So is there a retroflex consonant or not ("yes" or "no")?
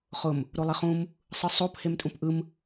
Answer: no